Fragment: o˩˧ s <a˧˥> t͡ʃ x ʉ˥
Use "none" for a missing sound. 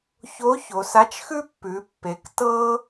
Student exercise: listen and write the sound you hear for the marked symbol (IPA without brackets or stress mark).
a˧˥